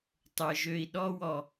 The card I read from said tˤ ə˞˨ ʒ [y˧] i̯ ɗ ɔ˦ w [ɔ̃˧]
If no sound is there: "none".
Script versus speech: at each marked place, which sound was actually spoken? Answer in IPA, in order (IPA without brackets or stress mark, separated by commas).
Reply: ø˧, ɔ˧